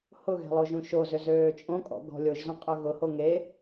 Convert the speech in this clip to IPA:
hʊɣɛ̤ lˠoʒũʃozʏ zøːt͡ʃʼõkʼɔ̰ ɡɔ̤lʲoʒzœ̃ qʼœɣʊho ŋe

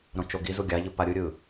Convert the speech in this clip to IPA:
ɾõt͡ʃoɡizu ɡʲaʎɯ paɾʲɯɾʲɯ

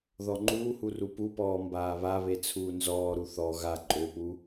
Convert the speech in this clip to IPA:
ðɔŋ͡ǃuːhu rupupɔː mbaːβaβe t͡sʰuːnzɔːɾu θɔ ɣa ǃʼøpu

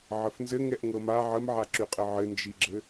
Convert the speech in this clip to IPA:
ʕəfnzɘ ŋɛʔŋɤma ʕəmʕaǁyqʼɘ ʕɘnd͡ʒiɡ͡ǁɘ

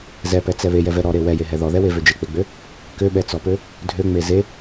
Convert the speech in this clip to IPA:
zɛpɛt͡sɛ βejɛvɛ ɾɔɾe wɛjeɦɛ ðɔðɛwevø d͡ʒek͡peɡ͡bø | køɓɛt͡sɔpø | dʱøŋ͡me ze

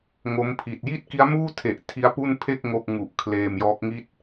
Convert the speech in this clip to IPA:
ŋo˦˥mpʰi˨˩t̚ ji˥˩t̚ki˦˥a̯muː˥˩tʰe˨˩ʔ tʰi˦˥a̯pu˥˩npʰe˥˩k̚ ŋo˥˩k̚ ŋu˨˩ʔ kʰleː˧mjɔː˦˥k̚ŋi˥˩t̚

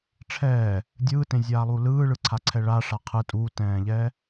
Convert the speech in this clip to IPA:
ʈ͡ʂʰɛː | dʲɯːtẽzʲaːlˠu lɯːɭɯǀʰaǀʰɛ ɭaʂa qʰɯ tʼutɛ̃ːʎɛ

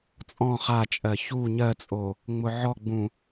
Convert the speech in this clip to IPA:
t͡sʼɔ̃ χat͡ʃʼɜ çu ɲɜt͡sʼo | ŋ͡mʊʕɔɡ͡bũ

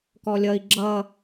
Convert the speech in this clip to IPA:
kɔlʲʌi̯ ɡ͡ǁʌ

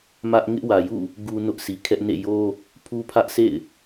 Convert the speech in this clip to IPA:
mä˦ʔ ŋɪ˦ʔwä˨jṵ˦˨ | ɡu˦nʊ˦ʔsʰi˨kʰɛ˦ʔ nḛ˦˨jo˦ | pʰu˦pʰä˦ʔsʰḛ˦˨ɪ̯

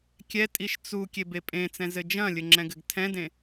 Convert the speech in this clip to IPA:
kʲɛtʼiʃ t͡su kʲebepʼẽt͡sɛ̃ zɘd͡ʒɐ̃lʲɘ ŋ͡ǁɛ̃ɡɘɡtʰɛ̃dẽ

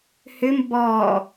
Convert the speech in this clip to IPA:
hʏm bɔ

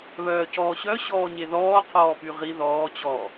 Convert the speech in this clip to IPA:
βœːcɔːɕœ ɕɔːɲeðɔː qʰɔːpyʁi ðɔː t͡ɕɔ

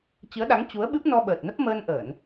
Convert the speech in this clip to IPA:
t͡ɕɨ˨˦ə̯ɗa˨˦ŋ t͡ɕu˨˦ə̯ɓɨ˦˥p̚nɔ˧ ɓəː˨˩t̚nə˦˥p̚məː˧nʔəː˧˩˨n

